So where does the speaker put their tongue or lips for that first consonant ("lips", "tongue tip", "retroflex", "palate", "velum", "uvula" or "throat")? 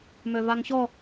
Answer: lips